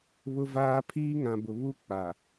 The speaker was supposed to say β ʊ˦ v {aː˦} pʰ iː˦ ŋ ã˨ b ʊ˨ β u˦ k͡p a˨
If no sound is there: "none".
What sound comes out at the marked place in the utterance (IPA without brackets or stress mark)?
aː˦